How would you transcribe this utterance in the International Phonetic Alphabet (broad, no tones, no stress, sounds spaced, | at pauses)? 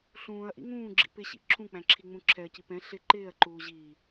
ɬ ũː ɐ̯ ʔ ḭ ŋ ũː ɡ͡ǁ ḭ p ɪ ɕ ḭ ǁʰ ũ k͡p æ̃ ǁʰ i ŋ͡m ũ ǁʰ ɛ ɐ̯ c i p ɛ̃ ɬ ɪ ǃ ɪː ɐ̯ ǃ uː ʑ iː